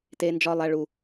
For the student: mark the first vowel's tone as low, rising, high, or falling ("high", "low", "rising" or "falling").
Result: high